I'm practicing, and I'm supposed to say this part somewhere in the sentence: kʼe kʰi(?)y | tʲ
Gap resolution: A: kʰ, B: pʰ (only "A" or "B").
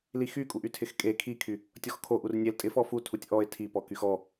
A